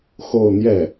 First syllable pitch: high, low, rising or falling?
falling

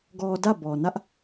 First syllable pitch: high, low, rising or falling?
low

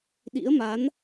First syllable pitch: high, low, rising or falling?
rising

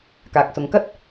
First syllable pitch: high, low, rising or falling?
low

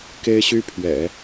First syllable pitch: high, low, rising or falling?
high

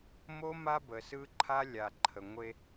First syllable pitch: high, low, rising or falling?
high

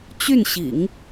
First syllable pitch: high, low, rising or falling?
falling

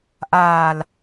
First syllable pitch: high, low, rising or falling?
low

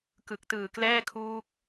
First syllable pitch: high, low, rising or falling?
low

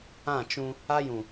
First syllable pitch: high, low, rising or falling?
falling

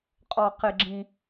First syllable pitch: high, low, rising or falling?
low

